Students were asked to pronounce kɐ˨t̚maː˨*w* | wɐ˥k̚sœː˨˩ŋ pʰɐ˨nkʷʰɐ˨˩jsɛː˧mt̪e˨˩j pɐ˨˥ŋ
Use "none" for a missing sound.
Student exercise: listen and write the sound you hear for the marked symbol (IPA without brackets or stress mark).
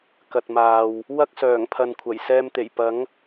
w